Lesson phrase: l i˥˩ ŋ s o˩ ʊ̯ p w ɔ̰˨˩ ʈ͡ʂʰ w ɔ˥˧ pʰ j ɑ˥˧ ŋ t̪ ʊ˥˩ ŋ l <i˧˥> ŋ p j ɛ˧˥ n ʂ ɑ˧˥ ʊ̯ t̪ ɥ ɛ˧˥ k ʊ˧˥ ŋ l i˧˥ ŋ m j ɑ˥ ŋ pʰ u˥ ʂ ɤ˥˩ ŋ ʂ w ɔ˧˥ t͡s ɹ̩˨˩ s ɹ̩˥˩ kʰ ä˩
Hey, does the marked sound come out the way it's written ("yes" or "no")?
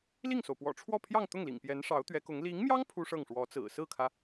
no